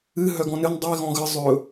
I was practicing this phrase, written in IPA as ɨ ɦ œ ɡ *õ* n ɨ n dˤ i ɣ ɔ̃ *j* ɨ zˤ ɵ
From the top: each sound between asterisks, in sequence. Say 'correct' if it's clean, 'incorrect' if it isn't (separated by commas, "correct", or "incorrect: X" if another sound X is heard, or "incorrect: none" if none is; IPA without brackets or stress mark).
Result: incorrect: ɔ̃, incorrect: ɣ